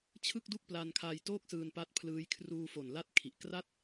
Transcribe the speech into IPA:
t͡ɕʰ ɯ˥˩ k̚ d u˥˩ k̚ p l a˧ n kʰ a˧ j t oː˥˩ k̚ s ɯː˧ n p a˦˥ t̚ pʰ l ɯː˦˥ j kʰ r uː˧ f o˨˩ n l a˦˥ t̚ kʰ i˨˩ ʔ k r a˥˩ t̚

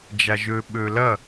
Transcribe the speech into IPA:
d͡ʒ a ʒ ø ɓ ø l ɐ

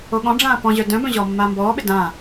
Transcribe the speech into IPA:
o ɠ ɔ̃ ɖ͡ʐ ãː p ɔ̃ ʑ œ d œ̃ b œ̃ ʑ ɔː mː aː m b ɔː ɓ ɪ d ã

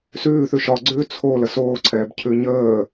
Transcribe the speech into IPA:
s ʉː θ ʉ ʃ ɒ ɡ͡ǀ ʉː t͡sʰ o l ə s oː ǀʰ ɛː b cʰ ʉ ɲ əː

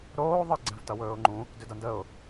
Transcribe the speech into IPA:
ɾ oː ðˤ ə ɡ͡ǀ ɛ̃ v t ʌ w ɵː ʊ̯ ŋ͡ǃ ũ | d ʏ d ʌ n d ə ʊ̯

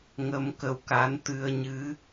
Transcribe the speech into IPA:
ŋ ə˧ m k ə˧ w k a˧˥ n t̪ ɨ˧ ə̯ ɲ ɨ˧˥

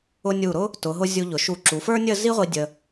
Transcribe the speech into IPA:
ʊ˥ nʲ u˧˩ ɾ ʊ˥ | t ʊ˩˧ ɦ ʊ˧ zʲ u˧ ʎ ʊ˩˧ ʃ u˧˩ ǁ u˩˧ f ə˞˥ nʲ ə˥˧ z i˥ ʁʷ i˧ dʲ ə˧

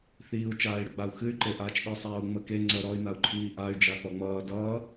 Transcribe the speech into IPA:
θ iː u̯ t͡ʃ aː i̯ ɽ ə ɡ͡b a u̯ x ɨ y̯ ǃ e ʔ aː t͡ʃ ɗ i sˤ aː u̯ ŋ͡m ə k e ŋ͡ǀ ə ɾ ɔ y̯ n a u̯ ǃʰ iː ʔ a y̯ d͡ʒ a θ ɔ ŋ͡m ʌː d ʌː

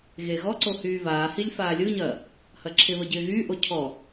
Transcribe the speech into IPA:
ɣ e ɣ ɔ ǀ o h yː v aː h i lʲ f aː lʲ ɯ ɲ ɐː | h ɐ ǁʰ ɪ β ə ɟ ɪː ɣ yː ʔ o cʰ ɔ

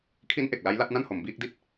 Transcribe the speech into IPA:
kʰ i˦˥ n ʔ e˨˩ k̚ l a˦˥ j l a˥˩ t̚ n a˥˩ n h o˩˦ m b iː˦˥ k̚ d i˥˩ t̚

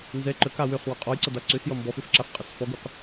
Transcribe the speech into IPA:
n z ɛ ǃ ə k a w ø χ w ɔ qʼ ɔ j ǀ ʌ d a ǀ ø s j ʌ m b ɔ f ø f ǁ a f qʼ ʌ s f ɔ ɡ u q

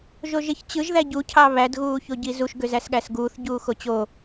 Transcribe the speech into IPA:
ʒ o ʒ e ç t͡ɕ ɯ ʒ ð æ ɟ u cʰ ɑ β æ d ɣ uː ç o ɟ i z u ʃ ɡ ø z æ s ɠ æ s ɡ uː θ ɟ uː x o t͡ɕ o

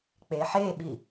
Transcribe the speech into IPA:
k͡p e ħ e ɓ i

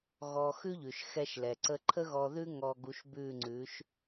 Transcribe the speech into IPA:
ɣ ɔ˧ x ʉ˦ ʎ ʉ˨ ʃ x ɛ˧ ʃ l ɛ˨ ǀ ə˧ ǃʰ ə˦ ɣ ɔ˧ ð ʉ˦ ŋ ɔ˧ ɡ u˧ ʃ b ʉ˦˨ ŋ͡ǀ ʉ˨˦ ʃ

